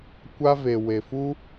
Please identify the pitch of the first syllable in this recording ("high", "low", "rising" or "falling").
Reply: high